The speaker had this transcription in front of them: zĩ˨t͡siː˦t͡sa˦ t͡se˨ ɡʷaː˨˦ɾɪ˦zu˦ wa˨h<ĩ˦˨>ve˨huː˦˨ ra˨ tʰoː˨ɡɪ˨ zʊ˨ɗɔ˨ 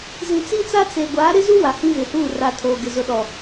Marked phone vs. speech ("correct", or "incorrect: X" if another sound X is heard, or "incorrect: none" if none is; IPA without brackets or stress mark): incorrect: ĩ˦